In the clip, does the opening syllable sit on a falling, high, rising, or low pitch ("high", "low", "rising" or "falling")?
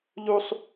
high